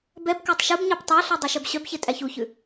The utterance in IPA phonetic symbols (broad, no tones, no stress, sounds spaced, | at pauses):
b ɛ b k ɑ tˤ ʃ u b ɲ ɑ p tˤ ɑ ɬ ʉ dˤ ɛ ʃ œ b ɕ œ b ç e tʼ æ ç u ç ʉ